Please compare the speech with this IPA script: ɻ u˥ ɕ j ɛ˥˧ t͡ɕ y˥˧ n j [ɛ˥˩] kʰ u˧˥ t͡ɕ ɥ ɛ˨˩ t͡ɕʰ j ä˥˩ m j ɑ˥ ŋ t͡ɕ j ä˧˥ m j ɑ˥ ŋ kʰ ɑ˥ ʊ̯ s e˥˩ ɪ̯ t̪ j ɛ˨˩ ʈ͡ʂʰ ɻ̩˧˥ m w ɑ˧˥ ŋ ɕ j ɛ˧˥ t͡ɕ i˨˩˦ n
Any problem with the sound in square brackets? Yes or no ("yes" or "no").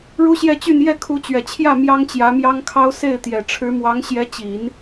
no